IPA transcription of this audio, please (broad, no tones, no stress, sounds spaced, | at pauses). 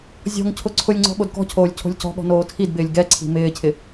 zʲ ɔ̤ ŋ cʰ ʊ ǀʰ ʊ lʲ ŋ͡ǀ ɔ̤ ɠ o d k ɔ̤ cʰ oː lʲ cʰ o̤ lʲ c ɔ̤ ɠ ɔ̤ n oː tʰ i d b ɪː lʲ ɡ ɛ ǀʰ i̤ m ɪː cʰ ɪ